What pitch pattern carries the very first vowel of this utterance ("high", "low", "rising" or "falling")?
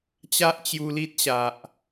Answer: high